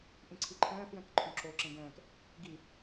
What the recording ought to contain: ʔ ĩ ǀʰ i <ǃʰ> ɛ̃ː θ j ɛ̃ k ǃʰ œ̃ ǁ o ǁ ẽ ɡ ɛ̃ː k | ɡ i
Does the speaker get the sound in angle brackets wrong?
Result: no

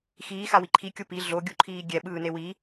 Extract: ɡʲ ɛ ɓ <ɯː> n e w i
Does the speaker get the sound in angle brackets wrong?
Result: no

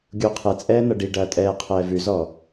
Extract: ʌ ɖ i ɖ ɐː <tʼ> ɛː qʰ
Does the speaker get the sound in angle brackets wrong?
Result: no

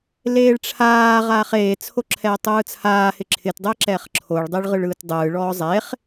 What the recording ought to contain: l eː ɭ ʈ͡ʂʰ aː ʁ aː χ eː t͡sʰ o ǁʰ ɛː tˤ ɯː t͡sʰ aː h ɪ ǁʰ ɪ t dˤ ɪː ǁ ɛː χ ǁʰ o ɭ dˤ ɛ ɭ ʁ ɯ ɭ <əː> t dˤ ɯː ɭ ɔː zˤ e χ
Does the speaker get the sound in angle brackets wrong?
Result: yes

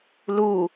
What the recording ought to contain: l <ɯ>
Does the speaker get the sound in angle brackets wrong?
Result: yes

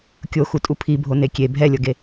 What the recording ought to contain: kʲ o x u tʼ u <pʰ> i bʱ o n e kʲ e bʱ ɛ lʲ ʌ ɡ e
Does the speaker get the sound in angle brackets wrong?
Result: no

